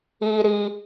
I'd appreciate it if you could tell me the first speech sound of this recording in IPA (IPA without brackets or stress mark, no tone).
i